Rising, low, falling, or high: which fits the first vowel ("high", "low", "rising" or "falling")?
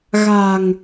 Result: low